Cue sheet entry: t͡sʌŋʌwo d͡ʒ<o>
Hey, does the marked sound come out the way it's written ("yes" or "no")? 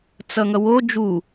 no